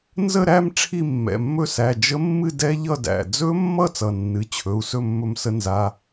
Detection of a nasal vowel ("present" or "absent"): absent